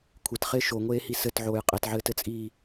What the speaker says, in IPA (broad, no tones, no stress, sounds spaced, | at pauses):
kʷʰ ɪ t χ ɪː ʃ o ŋʷ eː h i s ɘ t ʕ oː j qʼ e t ʕ ɘː t ɘ t͡sʼ iː